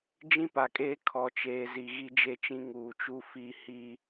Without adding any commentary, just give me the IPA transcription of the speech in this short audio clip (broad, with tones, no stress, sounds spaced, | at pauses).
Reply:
d͡ʒ ĩ˦ p a˨ kʼ eː˦ kʰ ɔ˨ t͡ʃ eː˨ z i˨ ɣ i˦ d͡ʒ e˦ t͡ʃ ĩ˦ ŋ uː˨ t͡ʃ u˦ f i˦˨ h i˦